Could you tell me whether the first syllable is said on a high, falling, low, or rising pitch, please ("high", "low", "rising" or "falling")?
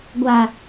low